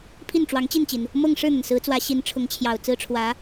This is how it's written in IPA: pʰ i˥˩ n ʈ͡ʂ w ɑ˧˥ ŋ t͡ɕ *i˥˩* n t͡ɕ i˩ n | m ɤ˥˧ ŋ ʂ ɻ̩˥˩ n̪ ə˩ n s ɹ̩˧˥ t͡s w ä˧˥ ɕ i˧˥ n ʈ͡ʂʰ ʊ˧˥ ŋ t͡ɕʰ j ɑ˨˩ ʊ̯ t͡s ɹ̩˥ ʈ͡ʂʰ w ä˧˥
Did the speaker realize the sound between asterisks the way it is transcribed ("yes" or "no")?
yes